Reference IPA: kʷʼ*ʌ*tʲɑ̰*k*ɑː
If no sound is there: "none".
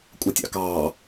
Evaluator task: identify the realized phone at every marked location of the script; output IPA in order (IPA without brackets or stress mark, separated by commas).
ʌ, k